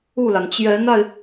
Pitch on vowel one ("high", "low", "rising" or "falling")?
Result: falling